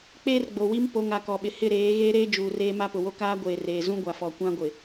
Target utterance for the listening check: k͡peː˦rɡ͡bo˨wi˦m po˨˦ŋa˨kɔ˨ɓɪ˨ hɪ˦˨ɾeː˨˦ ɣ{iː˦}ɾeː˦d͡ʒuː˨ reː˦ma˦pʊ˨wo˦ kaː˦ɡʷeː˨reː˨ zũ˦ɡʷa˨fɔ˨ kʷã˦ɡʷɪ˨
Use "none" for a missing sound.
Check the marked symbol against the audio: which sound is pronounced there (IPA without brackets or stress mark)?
eː˦